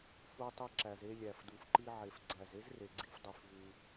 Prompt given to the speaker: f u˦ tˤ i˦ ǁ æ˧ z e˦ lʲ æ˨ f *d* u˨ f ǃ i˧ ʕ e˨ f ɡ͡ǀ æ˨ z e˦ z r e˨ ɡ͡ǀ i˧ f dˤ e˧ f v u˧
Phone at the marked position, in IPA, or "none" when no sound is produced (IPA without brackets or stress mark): d